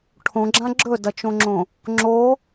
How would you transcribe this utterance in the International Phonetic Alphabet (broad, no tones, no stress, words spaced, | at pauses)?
ʈʰõɡ͡ǁã ɡ͡ǁɵdɐt͡ʃõŋ͡ǁõ | ŋ͡ǁo